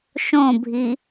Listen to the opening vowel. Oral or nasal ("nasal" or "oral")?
nasal